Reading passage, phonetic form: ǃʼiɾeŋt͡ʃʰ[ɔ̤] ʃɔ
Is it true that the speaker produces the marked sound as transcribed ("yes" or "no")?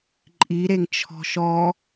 yes